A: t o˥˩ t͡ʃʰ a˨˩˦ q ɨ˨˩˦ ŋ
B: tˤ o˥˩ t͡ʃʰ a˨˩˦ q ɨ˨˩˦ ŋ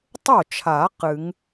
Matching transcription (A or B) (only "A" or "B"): B